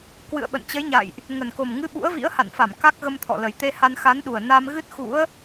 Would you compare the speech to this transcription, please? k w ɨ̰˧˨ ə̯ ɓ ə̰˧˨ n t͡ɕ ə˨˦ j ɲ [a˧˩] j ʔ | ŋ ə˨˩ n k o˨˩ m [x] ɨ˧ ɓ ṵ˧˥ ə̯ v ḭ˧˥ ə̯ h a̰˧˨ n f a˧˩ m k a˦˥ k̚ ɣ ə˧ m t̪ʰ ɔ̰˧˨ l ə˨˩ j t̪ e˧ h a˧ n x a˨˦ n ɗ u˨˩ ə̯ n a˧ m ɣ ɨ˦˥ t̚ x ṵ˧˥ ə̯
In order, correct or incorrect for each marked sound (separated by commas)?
incorrect, incorrect